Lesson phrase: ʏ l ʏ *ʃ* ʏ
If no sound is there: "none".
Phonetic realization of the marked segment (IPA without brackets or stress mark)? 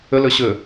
ɕ